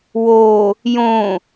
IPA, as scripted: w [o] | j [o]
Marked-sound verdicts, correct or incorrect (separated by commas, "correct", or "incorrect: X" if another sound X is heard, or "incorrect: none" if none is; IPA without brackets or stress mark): correct, incorrect: õ